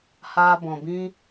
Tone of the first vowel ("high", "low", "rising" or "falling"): high